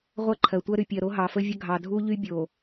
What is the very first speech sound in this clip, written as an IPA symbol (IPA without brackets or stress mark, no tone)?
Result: ʁʷ